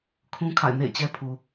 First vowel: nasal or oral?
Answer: nasal